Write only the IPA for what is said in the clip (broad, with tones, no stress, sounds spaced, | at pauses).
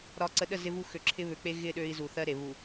ɾ ɒ˨ ǀ ə˨ ɗ ə˦˨ z ɪ˦ v u˦ x ø˨ ǁʰ ɪ˦ β ø˨ k͡p e˦ ɣ ɪ˦˨ ɗ ø˦ i̯ z u˨ θ ɜ˦ ɾ e˨ β u˨